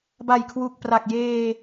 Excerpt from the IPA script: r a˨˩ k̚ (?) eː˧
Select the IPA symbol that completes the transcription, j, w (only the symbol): j